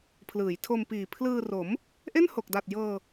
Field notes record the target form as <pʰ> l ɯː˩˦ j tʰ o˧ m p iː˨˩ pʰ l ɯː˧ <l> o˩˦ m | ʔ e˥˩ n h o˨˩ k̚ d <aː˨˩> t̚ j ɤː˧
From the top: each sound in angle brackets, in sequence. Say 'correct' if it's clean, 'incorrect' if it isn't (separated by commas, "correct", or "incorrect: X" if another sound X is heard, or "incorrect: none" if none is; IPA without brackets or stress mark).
correct, incorrect: r, incorrect: a˨˩